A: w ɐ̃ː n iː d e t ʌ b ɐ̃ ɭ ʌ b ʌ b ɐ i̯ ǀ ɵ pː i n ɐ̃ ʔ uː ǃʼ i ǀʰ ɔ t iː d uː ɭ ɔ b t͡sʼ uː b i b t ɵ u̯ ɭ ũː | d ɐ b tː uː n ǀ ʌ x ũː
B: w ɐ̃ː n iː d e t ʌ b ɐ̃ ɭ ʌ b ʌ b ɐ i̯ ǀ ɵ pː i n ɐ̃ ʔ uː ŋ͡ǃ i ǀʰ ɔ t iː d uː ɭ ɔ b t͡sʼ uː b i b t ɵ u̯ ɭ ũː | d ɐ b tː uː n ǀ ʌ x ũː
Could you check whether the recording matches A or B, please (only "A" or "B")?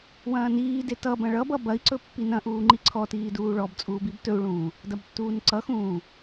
B